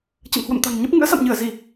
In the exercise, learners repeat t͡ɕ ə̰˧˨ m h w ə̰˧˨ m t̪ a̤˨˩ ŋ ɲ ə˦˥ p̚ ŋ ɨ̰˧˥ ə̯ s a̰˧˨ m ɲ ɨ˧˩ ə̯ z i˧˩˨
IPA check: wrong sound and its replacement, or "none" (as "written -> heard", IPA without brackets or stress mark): none